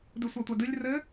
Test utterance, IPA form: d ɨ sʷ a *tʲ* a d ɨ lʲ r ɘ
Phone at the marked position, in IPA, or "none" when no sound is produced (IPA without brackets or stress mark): tʷ